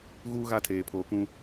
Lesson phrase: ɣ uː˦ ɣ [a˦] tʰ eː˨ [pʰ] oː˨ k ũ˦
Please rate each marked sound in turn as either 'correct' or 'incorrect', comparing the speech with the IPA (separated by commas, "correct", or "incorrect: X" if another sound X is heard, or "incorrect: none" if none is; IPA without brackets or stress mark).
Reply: correct, correct